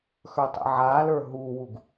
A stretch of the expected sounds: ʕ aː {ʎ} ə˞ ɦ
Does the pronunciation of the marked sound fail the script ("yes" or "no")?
yes